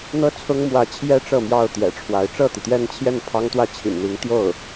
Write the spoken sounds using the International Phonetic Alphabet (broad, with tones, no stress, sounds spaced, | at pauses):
n̪ ɤ˥ t͡sʰ ʊ˥ ŋ m w ä˧˥ t͡ɕʰ j ɛ˥ ʈ͡ʂ ɤ˥˧ m j ɑ˥˩ ʊ̯ t̪ j ɛ̰˨˩ ʈ͡ʂʰ w a˧˥ ɪ̯ ʈ͡ʂ ɤ˥˩ t̪ i˩ t̪ j ɛ˥˧ n t͡ɕʰ j ɛ˥˩ n pʰ ɑ˥ ŋ t̪ w ä˥˩ t͡ɕʰ ḭ˨˩ n n̪ i˧˥ ŋ t̪ j o˥˩ ʊ̯